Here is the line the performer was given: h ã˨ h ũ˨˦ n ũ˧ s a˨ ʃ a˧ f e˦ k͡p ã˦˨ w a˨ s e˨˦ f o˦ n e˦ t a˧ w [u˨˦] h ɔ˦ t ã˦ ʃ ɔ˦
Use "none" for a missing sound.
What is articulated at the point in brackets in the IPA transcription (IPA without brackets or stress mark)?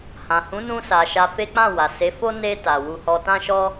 u˦